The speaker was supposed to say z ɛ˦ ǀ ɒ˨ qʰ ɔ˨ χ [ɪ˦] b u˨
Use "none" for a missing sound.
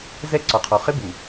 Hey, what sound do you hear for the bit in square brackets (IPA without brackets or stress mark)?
ɪ˦